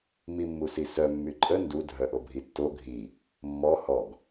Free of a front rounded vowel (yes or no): no